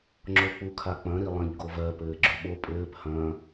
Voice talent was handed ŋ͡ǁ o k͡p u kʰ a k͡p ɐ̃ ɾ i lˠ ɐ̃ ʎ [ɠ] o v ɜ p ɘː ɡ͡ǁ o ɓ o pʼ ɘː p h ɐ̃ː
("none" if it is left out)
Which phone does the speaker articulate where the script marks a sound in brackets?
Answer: ɡ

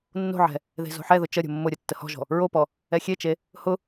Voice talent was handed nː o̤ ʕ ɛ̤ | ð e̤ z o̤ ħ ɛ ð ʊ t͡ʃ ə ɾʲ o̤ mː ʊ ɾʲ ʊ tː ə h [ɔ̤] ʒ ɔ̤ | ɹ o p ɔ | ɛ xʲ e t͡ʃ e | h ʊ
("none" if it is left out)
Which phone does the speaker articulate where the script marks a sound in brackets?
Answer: ɔ̤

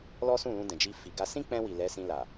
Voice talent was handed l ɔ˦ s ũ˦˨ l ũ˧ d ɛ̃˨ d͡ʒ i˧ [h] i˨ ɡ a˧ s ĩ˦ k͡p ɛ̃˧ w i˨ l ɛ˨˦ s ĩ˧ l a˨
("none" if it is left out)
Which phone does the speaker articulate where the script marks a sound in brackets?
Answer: f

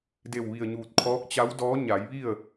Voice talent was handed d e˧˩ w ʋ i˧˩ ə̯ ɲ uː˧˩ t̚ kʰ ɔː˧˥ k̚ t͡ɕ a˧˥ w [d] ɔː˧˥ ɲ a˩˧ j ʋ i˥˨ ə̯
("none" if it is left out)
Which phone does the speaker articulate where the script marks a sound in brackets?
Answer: d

